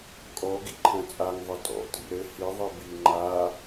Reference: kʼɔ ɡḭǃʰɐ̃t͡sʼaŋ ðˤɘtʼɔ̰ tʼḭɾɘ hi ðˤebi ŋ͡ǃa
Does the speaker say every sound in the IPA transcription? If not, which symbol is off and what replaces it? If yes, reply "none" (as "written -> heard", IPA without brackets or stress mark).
e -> i